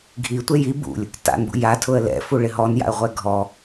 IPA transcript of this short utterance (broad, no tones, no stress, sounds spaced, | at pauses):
ɡʱ i tʷ e j i b ṵ lʲ | t a̰ n b ṵ j a tʰ ʊ ə̯ l ɛ̰ f u ɭ ɪ ɦ ɔ n j a̰ ə̯ ʁʷ ɛ ɡʱ ɔ